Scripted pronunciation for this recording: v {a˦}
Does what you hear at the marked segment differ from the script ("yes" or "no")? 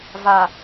yes